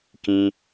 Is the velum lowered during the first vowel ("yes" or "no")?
yes